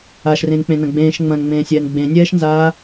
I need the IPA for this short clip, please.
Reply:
a ʃ r ẽ n k͡p ẽ n ɐ̃ ɡ͡b ẽː ʃ ŋ͡m ɐ̃ n ŋ͡m ẽː sʲ ɛː n ɡ͡b ẽ nʲ ɛː ʃ n z aː

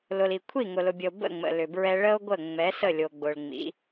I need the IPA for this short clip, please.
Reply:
l ʊ˨ l i˨ kʷʰ i˦˨ ŋ ʊ˨ l ʊ˨ bʲ ə˨ o̯ b ə̰˦˨ ŋ͡m ə̰˨ l ʏ˨ b ɹ ɛ˦ ɭ ə˦ o̯ ɡʷ ə˦˨ ŋ͡m ɛ˨˦ s ə˦˨ lʲ o˨ ɡ͡b ʊ˨ ɭ ŋ͡m ḭ˨˦

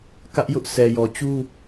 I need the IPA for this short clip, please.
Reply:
k ä˦ ʔ j ʊ˦ ʔ sʰ ɛ˨ j ɔ˨ t͡ɕ u˦

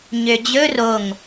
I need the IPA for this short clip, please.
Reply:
ɲ ø d͡ʑ ɵ r o ŋ

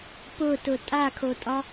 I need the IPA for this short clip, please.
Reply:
p ʊ t ʊ tʼ a kʰ o tʼ ɒ

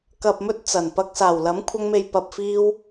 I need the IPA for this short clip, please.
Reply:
k ɐ˨ p̚ m ɵ˧ t̚ t͡s ɐ˨˩ n p ɐ˧ k̚ s aː˨˩ w l ɐ˨˥ m kʷʰ ɐ˧ ŋ m e˨ j p ɐ˨ p̚ f iː˧ w

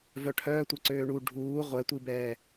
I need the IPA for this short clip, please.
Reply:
v œ ʈʰ œː tʷ ɛ ǀ øː ɳ u ɖʱ uː ʁʷ ɛ tʷ i b ɛː

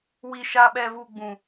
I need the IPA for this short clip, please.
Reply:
w i˦ ʃ a˦ ɓ ɛ˦ v u˦ ɡ͡b ũ˦

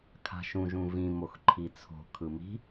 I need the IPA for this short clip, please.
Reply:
kʰ a̤ ʃ ũ ʒ ũ v ĩ m o x ǃʰ i t͡sʰ o̤ kʰ ɯ m i̤

